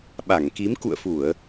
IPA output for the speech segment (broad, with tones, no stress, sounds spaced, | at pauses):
ɓ a˧˩ ŋ k i˨˦ m k ṵ˧˨ ə̯ f u˧˩˨ ə̯